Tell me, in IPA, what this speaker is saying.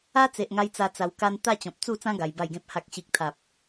a˦t͡se˨ʔŋa˧j t͡sa˧t͡sa˧w ka˧n t̪a˥˧t͡ɕɔ̃˨p̚ t͡su˥˧t͡sã˦ ɡa˧jba˥˧jɡẽ˦p̚ ha˨k̚ɕi˨k̚t̪ʰa˨p̚

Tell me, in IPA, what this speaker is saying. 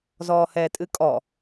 zɔːhɛːtʼɨkʼɔ

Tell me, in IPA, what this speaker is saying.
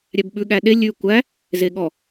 ɾʲæbɓʉ ɠæɗe lʲʉ kʷæ | zeɠɔ

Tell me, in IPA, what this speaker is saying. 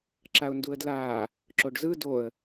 ǁaʊ̯nduə̯dlaː | ǁoɖzɯ doə̯

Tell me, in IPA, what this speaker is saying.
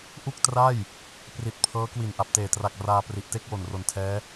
ʔu˥˩k̚tra˥˩j | pri˨˩t̚pʰɤː˦˥ kwi˨˩nʔa˨˩p̚teː˨˩tra˨˩k̚ raː˧ pri˨˩ʔte˥˩k̚ wo˨˩nro˨˩ntʰɛː˦˥

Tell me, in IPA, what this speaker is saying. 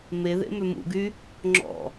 meðḛ mømṵɡy | ŋ͡ǁɔ̰

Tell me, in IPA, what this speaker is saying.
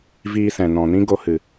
viː˧sɛ̃˨nɔ̃˨nĩ˦ ɡo˧hɨ˨

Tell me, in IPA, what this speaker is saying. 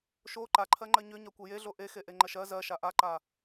ʃo ǃaǃʰɜŋ͡ǃɜ ɲʏ ɲakʷejeɮo ʔexe ʔeŋ͡ǃɜʃɜ zɜʃa ʔaǃa

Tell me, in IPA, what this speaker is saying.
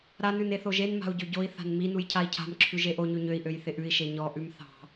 ɾanʉn eθoʒenma̤u̯ ɟøɟoi̯θa̤n minuj cʰai̯cʰa̤mǁʰʉʒ eʔoɲʉ ɲøi̯ʔøj θɪʔʉi̯ʃe ɲɔʔʉm θɑ̤

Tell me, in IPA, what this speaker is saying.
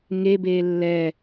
ŋe beːlːɛ

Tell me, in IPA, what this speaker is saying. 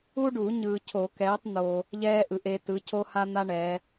u˥ɖu˨˩˦ ɲɯː˨cʰo˨˩˦kɛː˨˦tˤ n̪o˨ | ʎɛː˥ʔɯ˨˩˦ʔe˨˦ tɯ˨˦cʰo˥ha˥n̪a˥ ɳɛ˨˦

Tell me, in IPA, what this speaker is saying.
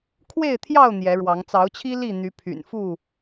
kʰwe˥˨ɪ̯t̪ʰjɑ˥˨ʊ̯ n̪jɛ˨˦ɻwɑ˨˦ŋ t͡sɑ˨˦ʊ̯t͡ɕʰi˦ li˥˨ n̪y˨˦pʰy̰˨˩nfu˥˨

